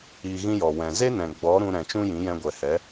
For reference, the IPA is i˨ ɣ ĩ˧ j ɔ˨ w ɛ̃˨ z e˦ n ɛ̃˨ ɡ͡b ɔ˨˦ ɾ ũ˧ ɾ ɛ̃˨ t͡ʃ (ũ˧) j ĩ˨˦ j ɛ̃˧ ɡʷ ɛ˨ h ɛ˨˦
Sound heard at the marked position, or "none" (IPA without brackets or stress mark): ũ˧